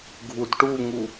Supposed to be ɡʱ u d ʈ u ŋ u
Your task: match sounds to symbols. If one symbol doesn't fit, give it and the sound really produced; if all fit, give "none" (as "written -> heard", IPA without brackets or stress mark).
none